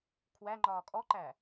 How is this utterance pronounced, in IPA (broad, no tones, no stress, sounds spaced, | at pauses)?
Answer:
kʰ w æ ŋ͡ǃ ɒː kʼ ɔ ǃ æ